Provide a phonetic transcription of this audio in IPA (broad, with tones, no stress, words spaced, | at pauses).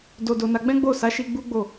do˧do˧ na˧ɡ͡bɛ̃˦ɡ͡bo˦˨ sa˨˦ʃi˧ ɡ͡bu˦ɡ͡bo˦˨